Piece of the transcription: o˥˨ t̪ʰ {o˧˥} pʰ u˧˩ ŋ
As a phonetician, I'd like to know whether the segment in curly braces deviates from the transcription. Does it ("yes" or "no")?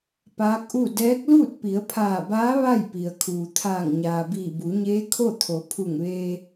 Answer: yes